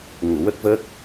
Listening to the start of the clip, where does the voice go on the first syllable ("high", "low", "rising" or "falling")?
low